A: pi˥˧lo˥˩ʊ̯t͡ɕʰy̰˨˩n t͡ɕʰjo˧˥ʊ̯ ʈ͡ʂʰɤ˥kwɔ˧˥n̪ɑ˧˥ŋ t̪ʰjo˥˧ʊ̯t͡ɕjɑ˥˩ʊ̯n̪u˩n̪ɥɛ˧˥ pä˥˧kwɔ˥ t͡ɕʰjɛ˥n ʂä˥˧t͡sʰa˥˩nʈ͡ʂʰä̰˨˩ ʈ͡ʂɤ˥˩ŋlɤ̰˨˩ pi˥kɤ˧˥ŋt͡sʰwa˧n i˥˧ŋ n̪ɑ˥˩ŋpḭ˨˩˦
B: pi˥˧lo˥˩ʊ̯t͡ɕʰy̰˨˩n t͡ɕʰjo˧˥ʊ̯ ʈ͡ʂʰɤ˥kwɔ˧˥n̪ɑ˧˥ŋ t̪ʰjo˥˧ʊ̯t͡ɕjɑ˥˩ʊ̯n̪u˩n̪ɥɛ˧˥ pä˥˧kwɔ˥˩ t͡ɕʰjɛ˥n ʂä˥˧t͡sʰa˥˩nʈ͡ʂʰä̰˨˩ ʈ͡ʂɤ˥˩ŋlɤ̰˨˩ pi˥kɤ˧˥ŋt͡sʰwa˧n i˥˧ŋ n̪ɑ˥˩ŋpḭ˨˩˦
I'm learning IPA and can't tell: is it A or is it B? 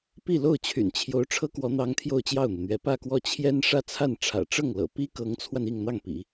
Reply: B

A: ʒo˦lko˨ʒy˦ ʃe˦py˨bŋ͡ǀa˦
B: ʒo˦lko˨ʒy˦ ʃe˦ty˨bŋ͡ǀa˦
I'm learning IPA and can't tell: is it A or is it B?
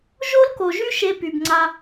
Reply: A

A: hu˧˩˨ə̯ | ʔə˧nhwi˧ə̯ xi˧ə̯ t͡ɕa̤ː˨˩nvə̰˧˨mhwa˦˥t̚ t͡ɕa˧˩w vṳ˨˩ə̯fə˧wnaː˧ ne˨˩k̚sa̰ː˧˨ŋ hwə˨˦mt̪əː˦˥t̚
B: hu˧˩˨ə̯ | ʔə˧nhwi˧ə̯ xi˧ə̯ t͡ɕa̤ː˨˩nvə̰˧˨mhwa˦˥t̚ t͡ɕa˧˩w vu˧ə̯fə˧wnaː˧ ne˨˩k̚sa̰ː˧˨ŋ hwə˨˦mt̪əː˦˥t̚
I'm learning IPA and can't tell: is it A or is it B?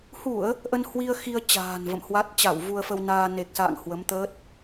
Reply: B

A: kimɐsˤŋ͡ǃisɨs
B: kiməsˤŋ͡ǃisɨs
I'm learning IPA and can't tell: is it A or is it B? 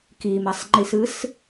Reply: A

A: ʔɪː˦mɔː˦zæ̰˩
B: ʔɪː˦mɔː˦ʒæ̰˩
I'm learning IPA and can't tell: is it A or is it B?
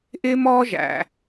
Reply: B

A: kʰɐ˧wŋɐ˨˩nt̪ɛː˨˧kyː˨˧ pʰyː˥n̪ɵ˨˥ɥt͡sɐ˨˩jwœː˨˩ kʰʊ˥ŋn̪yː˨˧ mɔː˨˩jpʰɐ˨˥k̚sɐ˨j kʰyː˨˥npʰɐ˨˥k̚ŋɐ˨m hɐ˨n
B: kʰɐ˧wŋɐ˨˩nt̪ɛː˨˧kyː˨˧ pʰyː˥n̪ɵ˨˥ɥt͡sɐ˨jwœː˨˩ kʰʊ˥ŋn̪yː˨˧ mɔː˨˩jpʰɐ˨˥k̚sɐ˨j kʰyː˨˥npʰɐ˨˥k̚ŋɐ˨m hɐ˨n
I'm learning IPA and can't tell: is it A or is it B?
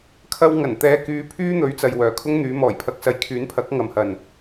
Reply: B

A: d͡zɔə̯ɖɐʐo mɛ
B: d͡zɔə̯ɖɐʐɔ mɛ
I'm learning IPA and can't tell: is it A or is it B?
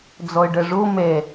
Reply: A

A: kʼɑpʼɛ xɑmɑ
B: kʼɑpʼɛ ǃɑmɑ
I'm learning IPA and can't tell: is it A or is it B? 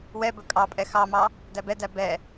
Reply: A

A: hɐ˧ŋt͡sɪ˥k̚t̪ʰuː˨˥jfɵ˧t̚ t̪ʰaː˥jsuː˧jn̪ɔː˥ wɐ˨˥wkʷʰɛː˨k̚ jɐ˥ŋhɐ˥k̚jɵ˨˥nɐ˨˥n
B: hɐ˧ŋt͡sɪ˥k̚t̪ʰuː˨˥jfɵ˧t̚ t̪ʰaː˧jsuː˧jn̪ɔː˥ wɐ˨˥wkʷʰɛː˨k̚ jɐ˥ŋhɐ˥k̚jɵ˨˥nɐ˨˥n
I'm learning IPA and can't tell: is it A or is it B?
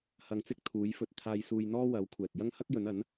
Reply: B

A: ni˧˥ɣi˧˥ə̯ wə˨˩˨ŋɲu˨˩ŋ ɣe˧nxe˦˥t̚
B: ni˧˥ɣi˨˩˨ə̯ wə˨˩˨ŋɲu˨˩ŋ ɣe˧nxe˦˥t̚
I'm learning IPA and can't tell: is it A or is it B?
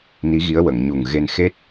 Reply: A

